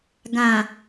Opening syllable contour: low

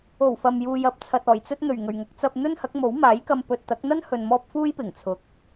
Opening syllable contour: low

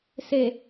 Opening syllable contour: low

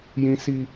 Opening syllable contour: high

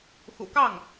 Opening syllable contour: low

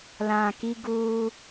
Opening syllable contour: low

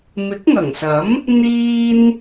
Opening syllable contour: rising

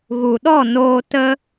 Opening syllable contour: low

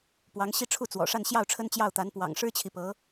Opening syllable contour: rising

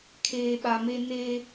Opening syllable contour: low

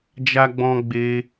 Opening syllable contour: high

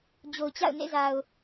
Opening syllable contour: low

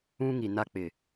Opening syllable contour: high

